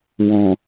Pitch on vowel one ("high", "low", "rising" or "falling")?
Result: low